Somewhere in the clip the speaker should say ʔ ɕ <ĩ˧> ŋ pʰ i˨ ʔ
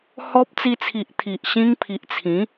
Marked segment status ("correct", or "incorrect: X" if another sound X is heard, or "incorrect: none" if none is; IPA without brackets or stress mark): correct